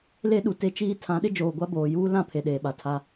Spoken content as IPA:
l e˦ ɗ u˨ t e˦ t͡ʃ iː˦ tʰ ã˨˦ ɗ ɪ˦ d͡ʒ oː˨ ɡʷ a˦ b oː˨ j uː˦ l ã˦˨ pʰ e˨ ɗ eː˨ ɓ a˨ tʰ a˦

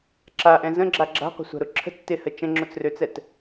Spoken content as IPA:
ǁ a ʔ ɛ̃ z ə̃ ɡ͡ǁ a ɡ͡ǁ a̤ qʷ ə̤ sʷ a̤ ɾ ʊ ǁʰ ə̤ t͡s t ɪ h ə t͡ʃ ə̃ ŋ͡ǁ ʊ t͡s r ø t͡s ɛ t

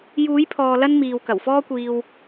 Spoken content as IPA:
j uː˨˥ j pʰ ɔː˨ l ɐ˥ n m iː˨ w k ɐ˨˩ w f ɔː˥ kʷ iː˧ w

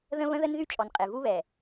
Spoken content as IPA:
ð ə̃˦ β ə̃˦ ð ə˦ n ð y˦ t͡ʃʼ ɔ˨ n qʼ e˨ v u˦ β ɛ˨

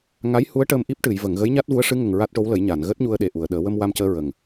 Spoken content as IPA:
ŋ a˧˥ j h u˧˥ ə̯ ʈ əː˧ m ʔ i˦˥ p̚ ʈ ɨ˨˩˨ j v ə˨˩˨ ŋ ɣ ə˧˥ j ɲ a˦˥ t̚ v u˧˥ ə̯ ʂ ɨ˧˥ ŋ ə˨˩ ŋ ɹ a˦˥ t̚ ʈ o˧˥ w l ə˨˩˦ j ɲ a˨˩˨ n ɣ əː˦˥ t̚ ɲ u˧ ə̯ ɗ e˨˩ ʔ u˨˩˨ ə̯ ɗ əː˨˩˦ w ə˧ m w a˧ m c əː˧ ɹ ə˨˩ ŋ

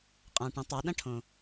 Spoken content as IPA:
qʼ ã˩ ʈ ə̃˩˧ tˤ a˩˧ ɗ ɐ̃˥ ʈʰ õ˩

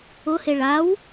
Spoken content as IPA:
ʊ h e ɭ a w

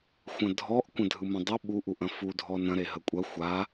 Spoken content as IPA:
xʷ ɐ̃ dʱ ɔ ʔ kʷ ɐ̃ dʱ ɯ m ɐ̃ dˤ ə ɓ u ʔ u ʔ ɐ̃ f u dʱ ɔ n ɐ̃ ɾ e ɦ ə kʷʼ ɐ xʷ a

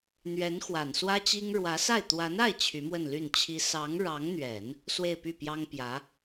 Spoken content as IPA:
n̪ ɥ ɛ˧˥ n x w a˨˩ n s w ä˥ t͡ɕ i˥ ŋ ɻ w ä˧˥ s a˥˩ ɪ̯ t̪ w a˧˥ n a˥˩ ɪ̯ t͡ɕʰ y˧˥ m w ə˥˧ n l y˥˩ n t͡ɕʰ i˥ s ɑ˧˥ ŋ ɻ ɑ˧˥ ŋ n̪ ɥ ɛ˨˩˦ n | s w e˥˧ ɪ̯ p y˥˩ p j ɑ˥ ŋ p j ä˧˥

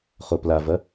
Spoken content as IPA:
χ o p l a v ɐ

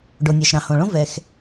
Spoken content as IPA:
ɖ o˩ nʲ ɑ˩ ʃ ɾ ɑ̃˩ h õ˩ ɭ õ˥ v ɛ˩ x

